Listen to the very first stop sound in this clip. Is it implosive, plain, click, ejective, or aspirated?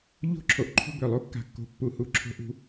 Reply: click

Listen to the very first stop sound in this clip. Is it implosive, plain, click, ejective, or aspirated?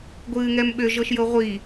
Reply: plain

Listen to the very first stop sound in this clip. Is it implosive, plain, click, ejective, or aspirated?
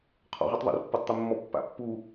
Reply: aspirated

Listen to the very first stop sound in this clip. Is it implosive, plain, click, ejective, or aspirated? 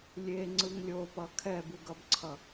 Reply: click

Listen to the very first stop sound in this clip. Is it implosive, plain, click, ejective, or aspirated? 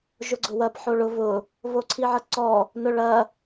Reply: click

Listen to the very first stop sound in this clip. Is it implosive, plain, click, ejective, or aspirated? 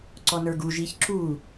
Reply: click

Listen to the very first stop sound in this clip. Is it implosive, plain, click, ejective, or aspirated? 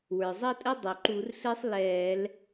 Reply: ejective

